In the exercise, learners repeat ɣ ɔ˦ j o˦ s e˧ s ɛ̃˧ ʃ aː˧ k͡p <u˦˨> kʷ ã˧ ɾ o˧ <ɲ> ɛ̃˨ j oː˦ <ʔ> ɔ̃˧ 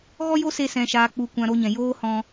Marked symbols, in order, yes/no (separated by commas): no, yes, no